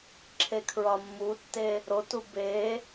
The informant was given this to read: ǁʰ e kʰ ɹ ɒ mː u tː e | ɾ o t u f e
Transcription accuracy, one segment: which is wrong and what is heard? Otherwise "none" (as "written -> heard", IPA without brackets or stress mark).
f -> b